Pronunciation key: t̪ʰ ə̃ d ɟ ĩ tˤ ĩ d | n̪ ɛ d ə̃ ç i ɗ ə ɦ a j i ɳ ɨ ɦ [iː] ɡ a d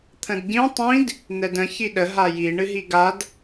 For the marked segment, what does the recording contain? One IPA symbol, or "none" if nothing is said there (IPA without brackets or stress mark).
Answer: i